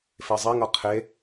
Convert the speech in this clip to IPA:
fezˤeŋʌ qʰe

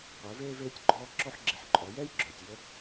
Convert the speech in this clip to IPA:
qʷəː˩˧veː˧veː˧tʲɡ͡ǃɔː˧ ǁɔ˧ħɡ͡ǁi˩˧ħǃʼɔ˩˧ jɛ˥jɡ͡ǁœː˩tʲjə˧˥

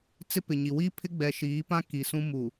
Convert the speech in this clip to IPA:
t͡sɪ˦pɪ˨ɲi˨ wi˦pʰɪ˦ɡ͡bɛ˨ ʃiː˨˦pã˦ ki˨ sũ˦mu˨

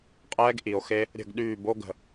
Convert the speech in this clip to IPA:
qʼɛː˦ɡʔi˨o̯xe˦ | ɾʲə̤˦˨ɡɗyː˦˨bo˦ɡə̤˨

